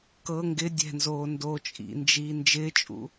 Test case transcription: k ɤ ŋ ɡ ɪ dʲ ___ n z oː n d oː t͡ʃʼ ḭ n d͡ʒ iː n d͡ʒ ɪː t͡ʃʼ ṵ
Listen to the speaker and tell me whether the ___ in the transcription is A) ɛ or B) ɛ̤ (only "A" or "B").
B